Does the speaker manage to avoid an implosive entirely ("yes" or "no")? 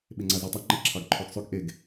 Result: no